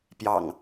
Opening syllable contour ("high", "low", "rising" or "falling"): low